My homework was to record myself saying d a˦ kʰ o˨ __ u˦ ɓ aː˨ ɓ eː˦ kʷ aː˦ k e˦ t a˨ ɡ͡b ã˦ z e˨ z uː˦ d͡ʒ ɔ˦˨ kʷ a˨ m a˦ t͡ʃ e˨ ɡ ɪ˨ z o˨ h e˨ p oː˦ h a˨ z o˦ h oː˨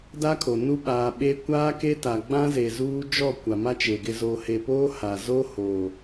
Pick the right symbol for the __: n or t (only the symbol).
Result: n